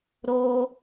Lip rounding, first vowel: rounded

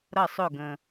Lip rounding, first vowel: unrounded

